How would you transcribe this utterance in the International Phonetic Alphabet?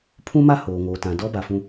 pʰ ũ˦ m a˦ h oː˨ ŋ oː˨ t ã˨ d ɔ˦ b a˨ f ũ˦

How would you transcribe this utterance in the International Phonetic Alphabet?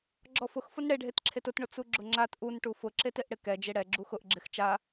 ɡ͡ǁ ɔ f ʊ x f ʊ n ɽ e ɖʱ e t ǁʰ e t ʊ t ɳ ʊ t͡s u ɡ͡ǁ ʊ ŋ͡ǁ a t ʔ u n ʈ u f ʊ ǁ e t e ʔ ɽ ɪ k ɛ d͡ʒ e ɽ ɛ ɡ͡ǁ u x ʊ ʔ ɡ͡ǁ ɪ x t͡ʃ a

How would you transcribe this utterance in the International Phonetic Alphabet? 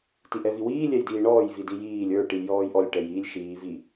t i ʔ ɛ v i w iː lʲ ɛ j d iː ɳ ɔː j v i d i j iː lʲ ə˞ ʈ i lʲ j ɔː j ʔ ɔ lʲ ʈ ɛ j iː lʲ ʃ iː v i

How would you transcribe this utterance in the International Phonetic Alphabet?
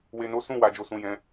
w e˨ n o˨˦ s ũ˦˨ w a˨ d͡ʒ o˨ s ũ˨ j ɛ̃˨˦

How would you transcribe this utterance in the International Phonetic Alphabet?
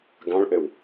ɡ ɑ̃ ɭ ʔ ɘ w

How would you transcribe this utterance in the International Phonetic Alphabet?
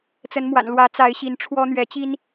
t͡s ə˨˦ n m w a̰˨˩ n l w ä˨˦ t͡s a˨˦ ɪ̯ ɕ i˨˦ n ʈ͡ʂʰ w ɔ˦ n̪ ɥ ɛ˨˦ t͡ɕ i˦ n

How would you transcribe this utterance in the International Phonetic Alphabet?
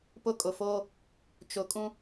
p ʊ˦ kʼ ʊ˨ f oː˦ | t͡ʃ ʊ˨ kʼ ũ˦

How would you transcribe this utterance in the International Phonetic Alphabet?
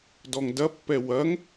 d ɔ ŋ d ɐ pː ɛ w ɐ ŋ

